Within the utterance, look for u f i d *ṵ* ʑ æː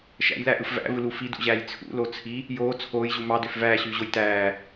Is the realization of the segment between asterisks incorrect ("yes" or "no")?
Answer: no